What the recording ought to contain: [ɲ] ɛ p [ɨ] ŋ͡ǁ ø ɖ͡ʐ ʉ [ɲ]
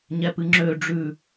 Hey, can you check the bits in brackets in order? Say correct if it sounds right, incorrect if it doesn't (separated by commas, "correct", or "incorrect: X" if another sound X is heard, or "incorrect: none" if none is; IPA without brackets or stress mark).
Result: correct, correct, incorrect: none